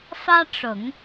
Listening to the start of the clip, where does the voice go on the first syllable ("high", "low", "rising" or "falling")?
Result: high